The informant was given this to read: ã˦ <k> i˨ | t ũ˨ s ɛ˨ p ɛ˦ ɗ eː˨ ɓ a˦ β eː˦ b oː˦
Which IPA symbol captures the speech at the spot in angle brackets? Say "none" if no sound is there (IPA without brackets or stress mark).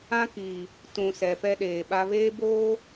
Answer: k